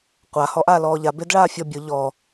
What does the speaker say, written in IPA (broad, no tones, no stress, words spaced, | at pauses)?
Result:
qʷa hɔʔaːlɔːʎa bedɭaːfʲɔbʲʊ ʎɔ